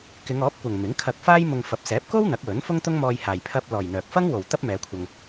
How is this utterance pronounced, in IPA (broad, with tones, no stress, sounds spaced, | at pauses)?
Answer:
k ɪ˨˧ ŋ ɔː˨˥ p̚ kʷ ɐ˨ ŋ m ɪ˨˥ ŋ kʰ ɐ˧ k̚ f aː˥ j m ʊ˧ ŋ f ɐ˨˥ p̚ s ɛː˨˥ p̚ k o˥ w n̪ ɐ˨˥ k̚ w ɵ˨˥ n f ʊ˥ ŋ t̪ ʊ˥ ŋ m ɔː˧ j h aː˨ j pʰ ɐ˥ p̚ l ɔː˨ j n̪ œː˨ k̚ f ɐ˥ ŋ w o˨ w t̪ ɐ˥ p̚ m ɛː˨˧ kʷʰ ɐ˧ ŋ